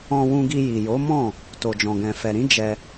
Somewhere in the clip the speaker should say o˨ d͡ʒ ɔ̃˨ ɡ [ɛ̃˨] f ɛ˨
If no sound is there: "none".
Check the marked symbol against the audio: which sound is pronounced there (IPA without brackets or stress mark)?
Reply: ɛ̃˨